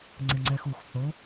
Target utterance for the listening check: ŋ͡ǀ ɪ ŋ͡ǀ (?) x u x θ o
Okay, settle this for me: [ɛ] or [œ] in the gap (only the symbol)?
ɛ